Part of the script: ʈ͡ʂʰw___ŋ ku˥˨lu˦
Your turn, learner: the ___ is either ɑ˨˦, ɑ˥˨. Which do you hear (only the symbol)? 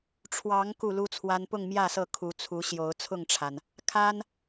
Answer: ɑ˨˦